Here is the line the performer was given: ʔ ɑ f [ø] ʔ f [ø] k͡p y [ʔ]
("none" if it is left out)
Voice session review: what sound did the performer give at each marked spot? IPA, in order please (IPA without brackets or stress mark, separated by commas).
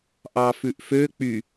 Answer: ʉ, ø, none